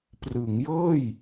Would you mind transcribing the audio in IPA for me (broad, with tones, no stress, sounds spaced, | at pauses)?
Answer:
p r ɯ˩˦ ŋ j ɤː˥˩ j